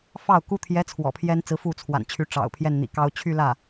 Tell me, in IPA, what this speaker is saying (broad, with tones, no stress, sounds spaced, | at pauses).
f ɑ˥˩ ʊ̯ k u˥ t̪ʰ j ɛ˧˥ t͡sʰ w ɔ̰˨˩ pʰ j ɛ˥ n t͡s ɹ̩˧˥ f u˥˩ t͡sʰ w a̰˨˩ n t͡ɕʰ y˧˥ ʈ͡ʂ ɑ̰˨˩ ʊ̯ pʰ j ɛ˥˩ n n̪ ḭ˨˩ k ɑ˥ ʊ̯ t͡ɕʰ y˥˧ l ä˥˩